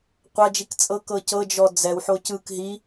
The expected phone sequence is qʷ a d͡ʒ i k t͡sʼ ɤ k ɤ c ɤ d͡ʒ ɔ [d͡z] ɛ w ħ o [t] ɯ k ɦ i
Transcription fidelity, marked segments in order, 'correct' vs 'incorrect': correct, incorrect: c

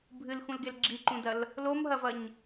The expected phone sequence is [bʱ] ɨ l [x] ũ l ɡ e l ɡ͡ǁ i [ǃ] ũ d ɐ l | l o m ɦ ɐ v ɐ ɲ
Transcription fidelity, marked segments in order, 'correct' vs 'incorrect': correct, correct, correct

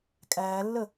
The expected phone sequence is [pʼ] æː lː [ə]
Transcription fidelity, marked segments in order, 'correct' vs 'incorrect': incorrect: kʼ, correct

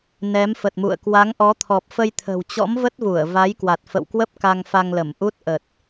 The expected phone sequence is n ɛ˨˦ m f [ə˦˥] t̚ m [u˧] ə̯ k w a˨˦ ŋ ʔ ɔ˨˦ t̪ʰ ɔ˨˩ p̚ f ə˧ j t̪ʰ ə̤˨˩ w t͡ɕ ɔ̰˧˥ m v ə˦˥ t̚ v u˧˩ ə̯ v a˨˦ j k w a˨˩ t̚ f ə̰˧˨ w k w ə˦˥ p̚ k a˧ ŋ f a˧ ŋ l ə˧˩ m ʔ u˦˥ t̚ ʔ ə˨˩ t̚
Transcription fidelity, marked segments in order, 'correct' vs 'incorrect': incorrect: ə˨˩, incorrect: ṵ˧˨

